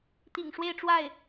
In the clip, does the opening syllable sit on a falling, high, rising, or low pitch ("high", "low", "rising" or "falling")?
low